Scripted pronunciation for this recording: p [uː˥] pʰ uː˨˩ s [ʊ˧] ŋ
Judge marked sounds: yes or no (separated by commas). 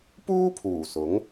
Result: yes, no